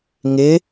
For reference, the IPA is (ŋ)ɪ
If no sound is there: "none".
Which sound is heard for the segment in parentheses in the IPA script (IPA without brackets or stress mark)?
ŋ